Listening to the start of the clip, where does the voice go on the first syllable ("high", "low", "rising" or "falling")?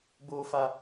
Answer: low